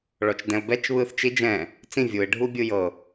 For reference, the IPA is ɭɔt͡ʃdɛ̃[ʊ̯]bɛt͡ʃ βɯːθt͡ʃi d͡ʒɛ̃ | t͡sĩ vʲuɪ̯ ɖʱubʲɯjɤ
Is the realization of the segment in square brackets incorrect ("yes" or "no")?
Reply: no